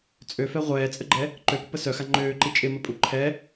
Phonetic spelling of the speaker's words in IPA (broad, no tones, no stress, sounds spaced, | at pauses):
t͡sʼ ø f ɛ ʁʷ ɛː t͡sʼ ə ɡ͡ǃ ɛ | ǃ ø p ʏ p ə s œ x a ŋ͡ǃ øː ǃ i t͡ʃʼ ɪ m ə pʼ u ǃʰ ɛ